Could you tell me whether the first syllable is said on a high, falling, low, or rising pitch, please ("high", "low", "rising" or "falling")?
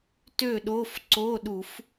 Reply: falling